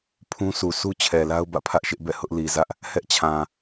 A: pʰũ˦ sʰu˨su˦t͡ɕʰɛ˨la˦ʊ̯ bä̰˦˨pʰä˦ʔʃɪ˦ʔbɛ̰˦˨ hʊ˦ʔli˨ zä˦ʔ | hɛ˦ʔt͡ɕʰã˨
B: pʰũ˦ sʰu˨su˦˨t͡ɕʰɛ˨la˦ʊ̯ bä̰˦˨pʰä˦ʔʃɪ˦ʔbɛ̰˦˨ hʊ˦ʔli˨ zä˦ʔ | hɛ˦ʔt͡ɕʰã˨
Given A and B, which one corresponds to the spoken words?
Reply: A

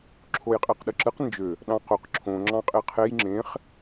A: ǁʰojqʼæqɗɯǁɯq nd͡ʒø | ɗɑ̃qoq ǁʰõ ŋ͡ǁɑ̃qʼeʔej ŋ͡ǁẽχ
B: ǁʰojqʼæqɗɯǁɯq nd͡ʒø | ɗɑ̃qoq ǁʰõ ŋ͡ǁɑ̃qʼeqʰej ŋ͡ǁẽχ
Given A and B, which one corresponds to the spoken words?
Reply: B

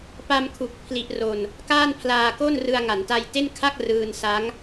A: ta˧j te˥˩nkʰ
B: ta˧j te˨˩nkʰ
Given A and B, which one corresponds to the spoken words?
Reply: A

